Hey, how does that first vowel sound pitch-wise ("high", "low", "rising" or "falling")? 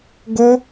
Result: high